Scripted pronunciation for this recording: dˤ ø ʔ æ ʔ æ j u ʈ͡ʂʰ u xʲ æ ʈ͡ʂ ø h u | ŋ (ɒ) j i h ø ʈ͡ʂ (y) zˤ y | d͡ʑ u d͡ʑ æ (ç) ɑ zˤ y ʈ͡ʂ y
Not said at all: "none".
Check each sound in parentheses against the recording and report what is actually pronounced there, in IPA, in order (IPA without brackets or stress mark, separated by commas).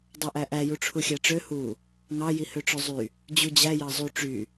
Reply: ɑ, ø, j